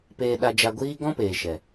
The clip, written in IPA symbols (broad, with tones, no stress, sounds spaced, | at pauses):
p eː˧ ɗ a˧ d͡ʒ a˧ ɡʷ iː˦ ɡ ɔ̃˦ p eː˨ ʃ ɛ˨